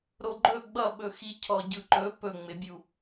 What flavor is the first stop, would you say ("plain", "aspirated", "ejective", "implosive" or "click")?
click